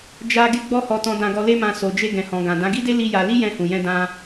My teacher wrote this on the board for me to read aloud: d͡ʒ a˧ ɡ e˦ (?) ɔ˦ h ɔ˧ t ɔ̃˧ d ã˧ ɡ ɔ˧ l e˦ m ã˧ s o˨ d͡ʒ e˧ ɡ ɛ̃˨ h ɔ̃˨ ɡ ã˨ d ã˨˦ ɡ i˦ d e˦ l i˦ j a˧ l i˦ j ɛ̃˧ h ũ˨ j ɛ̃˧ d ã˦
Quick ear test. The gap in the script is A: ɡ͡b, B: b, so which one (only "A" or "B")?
A